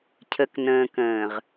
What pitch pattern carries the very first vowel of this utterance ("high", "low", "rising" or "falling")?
low